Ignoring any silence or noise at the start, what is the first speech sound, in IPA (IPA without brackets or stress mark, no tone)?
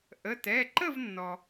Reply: ʔ